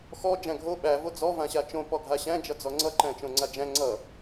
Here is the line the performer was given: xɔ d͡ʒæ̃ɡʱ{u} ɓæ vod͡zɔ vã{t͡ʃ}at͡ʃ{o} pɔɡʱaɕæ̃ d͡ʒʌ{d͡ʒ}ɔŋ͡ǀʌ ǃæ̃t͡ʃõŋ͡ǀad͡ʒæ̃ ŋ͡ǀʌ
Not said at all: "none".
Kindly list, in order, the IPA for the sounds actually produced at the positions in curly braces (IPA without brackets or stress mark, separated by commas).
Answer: o, ɕ, õ, d͡z